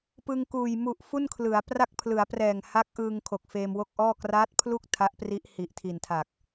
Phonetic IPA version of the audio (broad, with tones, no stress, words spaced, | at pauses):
pɯ˧ŋkuː˨˩j mu˨˩ʔ fu˥˩nkʰlɯ˩˦a̯ pra˥˩k̚pʰlɯ˩˦a̯prɛː˨˩ŋ ha˦˥k̚ʔɯː˧ŋ kʰo˨˩k̚feː˧mwo˥˩k̚ʔɔː˥˩ kraː˦˥t̚pʰlu˥˩k̚ tʰa˦˥ʔpri˦˥ʔ hi˨˩ʔtʰi˨˩ntʰa˨˩k̚